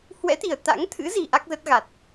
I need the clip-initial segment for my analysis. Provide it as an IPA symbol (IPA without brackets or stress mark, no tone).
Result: h